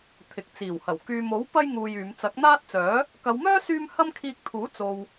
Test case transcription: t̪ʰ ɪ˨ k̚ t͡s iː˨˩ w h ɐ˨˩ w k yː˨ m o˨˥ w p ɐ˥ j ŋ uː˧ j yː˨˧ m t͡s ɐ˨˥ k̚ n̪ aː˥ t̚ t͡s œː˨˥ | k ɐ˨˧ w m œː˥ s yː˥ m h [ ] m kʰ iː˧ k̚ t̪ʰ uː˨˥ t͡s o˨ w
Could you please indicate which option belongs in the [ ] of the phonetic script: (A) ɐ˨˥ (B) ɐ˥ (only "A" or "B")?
B